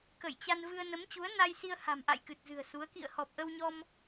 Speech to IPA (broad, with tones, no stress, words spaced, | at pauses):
kə˧˩jt͡ɕa˧nvɨ˧ə̯ nə˨˦mt͡ɕu˨˦ə̯na˧jsi˧ə̯ ha̤˨˩mʔa̰˧˨j kɨ˨˩t̚zɨ̤˨˩ə̯su˨˦ə̯ kḭ˧˨ə̯hɔ˨˩p̚ʔə˧wɲɔ˧m